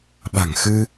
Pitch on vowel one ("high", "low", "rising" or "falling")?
low